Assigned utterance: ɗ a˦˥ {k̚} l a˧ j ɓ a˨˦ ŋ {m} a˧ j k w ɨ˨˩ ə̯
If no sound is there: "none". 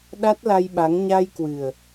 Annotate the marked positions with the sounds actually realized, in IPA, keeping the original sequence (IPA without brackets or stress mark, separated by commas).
t̚, ɲ